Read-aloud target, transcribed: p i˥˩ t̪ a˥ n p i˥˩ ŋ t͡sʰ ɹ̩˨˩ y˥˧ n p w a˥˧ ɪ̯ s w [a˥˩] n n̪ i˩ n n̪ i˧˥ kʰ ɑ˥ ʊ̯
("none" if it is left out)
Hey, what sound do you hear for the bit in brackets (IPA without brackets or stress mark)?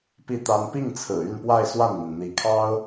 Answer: a˥˩